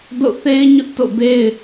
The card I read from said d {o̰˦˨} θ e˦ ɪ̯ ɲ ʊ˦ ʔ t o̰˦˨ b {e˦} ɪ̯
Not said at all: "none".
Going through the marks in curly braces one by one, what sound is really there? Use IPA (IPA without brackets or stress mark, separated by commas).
o̰˦˨, e˦